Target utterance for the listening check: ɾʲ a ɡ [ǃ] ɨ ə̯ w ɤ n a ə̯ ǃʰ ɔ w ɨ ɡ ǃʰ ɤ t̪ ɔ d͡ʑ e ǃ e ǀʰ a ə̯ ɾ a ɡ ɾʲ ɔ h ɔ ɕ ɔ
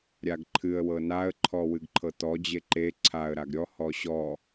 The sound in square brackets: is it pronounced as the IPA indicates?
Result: no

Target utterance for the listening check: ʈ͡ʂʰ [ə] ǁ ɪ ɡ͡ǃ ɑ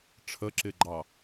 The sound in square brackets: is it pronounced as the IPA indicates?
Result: yes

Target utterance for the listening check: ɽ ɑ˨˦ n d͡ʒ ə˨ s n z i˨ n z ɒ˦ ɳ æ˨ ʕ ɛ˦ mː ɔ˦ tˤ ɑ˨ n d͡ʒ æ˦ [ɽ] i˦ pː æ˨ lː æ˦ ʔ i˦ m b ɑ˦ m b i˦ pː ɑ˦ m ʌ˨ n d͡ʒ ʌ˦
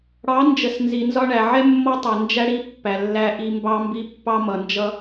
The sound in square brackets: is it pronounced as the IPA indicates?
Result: yes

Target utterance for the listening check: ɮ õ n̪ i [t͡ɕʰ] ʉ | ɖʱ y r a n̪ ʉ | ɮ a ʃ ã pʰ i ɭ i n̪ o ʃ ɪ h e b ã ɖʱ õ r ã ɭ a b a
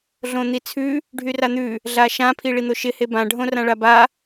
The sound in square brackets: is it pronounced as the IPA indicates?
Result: no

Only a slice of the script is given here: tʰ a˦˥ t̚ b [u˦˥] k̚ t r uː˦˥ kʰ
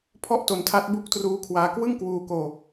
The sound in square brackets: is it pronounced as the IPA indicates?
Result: yes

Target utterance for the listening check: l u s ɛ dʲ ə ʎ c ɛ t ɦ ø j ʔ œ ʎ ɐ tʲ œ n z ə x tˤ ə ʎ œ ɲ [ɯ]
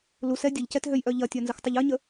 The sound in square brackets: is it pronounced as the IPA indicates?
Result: no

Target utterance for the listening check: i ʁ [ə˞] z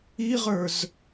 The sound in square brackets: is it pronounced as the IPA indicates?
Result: yes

